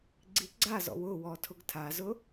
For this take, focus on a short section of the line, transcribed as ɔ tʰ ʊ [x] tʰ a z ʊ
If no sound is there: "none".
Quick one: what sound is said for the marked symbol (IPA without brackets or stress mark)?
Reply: ɡ